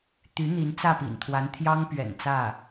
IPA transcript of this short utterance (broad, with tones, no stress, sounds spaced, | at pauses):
t̪ y˧˥ n̪ i˧˥ n t͡s ä˥˩ p ḭ˨˩ n t̪ʰ w a˧˥ n t̪ʰ j ɑ˥ ŋ p ɥ ɛ̰˨˩ n t͡s ä˥˩